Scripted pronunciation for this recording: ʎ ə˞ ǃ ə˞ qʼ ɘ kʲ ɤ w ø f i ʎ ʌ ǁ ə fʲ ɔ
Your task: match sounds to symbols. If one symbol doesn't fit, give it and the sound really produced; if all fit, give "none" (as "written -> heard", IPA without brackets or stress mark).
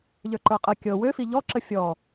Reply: ʌ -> ɔ